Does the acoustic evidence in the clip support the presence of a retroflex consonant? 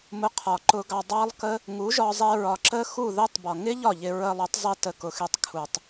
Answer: no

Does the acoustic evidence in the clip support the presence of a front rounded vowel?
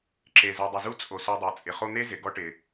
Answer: no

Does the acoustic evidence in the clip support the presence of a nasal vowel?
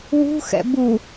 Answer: no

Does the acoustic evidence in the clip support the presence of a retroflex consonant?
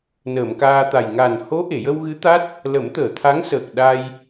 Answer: no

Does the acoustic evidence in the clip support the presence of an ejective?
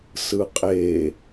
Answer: yes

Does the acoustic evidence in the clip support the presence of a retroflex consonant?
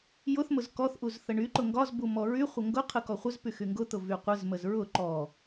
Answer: yes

